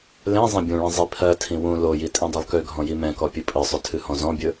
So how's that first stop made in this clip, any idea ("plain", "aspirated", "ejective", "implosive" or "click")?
plain